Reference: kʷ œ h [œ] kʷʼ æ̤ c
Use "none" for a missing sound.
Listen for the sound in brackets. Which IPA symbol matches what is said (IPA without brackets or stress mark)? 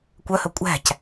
ɵ